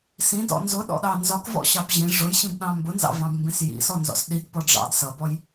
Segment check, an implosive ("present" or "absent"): present